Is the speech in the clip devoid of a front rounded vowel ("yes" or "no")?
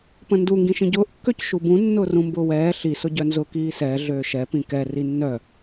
no